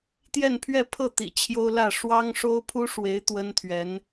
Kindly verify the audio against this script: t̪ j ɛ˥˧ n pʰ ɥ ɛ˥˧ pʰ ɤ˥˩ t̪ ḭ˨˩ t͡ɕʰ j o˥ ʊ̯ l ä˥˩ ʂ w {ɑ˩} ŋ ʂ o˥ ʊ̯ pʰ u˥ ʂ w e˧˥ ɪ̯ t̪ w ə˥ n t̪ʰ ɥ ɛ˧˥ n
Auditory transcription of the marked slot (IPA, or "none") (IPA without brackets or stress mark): ɑ˥